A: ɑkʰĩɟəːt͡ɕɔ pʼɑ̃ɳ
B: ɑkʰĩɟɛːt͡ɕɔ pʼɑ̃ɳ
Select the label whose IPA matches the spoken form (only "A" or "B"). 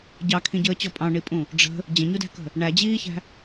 A